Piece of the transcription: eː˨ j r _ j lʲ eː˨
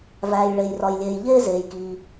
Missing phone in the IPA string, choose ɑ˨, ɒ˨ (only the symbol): ɒ˨